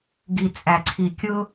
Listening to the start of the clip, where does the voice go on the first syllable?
low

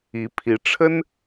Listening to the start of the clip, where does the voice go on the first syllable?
rising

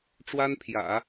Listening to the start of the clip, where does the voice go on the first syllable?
high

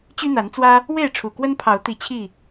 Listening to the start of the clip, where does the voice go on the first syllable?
high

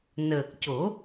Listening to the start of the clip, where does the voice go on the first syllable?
low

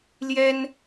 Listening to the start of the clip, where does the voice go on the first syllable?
high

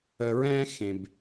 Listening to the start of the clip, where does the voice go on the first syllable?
low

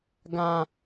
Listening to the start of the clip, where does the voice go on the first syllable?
high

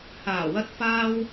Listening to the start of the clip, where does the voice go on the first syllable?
low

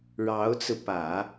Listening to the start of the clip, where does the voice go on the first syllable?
rising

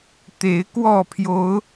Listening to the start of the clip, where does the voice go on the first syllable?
rising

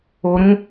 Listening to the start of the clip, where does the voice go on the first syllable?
low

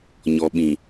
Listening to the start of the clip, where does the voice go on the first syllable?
low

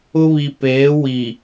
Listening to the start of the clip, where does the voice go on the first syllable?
high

